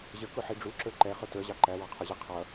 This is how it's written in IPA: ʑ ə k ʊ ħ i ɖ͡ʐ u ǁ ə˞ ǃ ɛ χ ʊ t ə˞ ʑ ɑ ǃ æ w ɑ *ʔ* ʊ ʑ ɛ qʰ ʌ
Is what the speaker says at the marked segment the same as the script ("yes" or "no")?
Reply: no